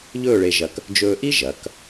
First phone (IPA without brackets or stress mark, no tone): ʎ